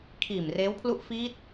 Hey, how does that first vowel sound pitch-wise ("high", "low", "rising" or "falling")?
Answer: low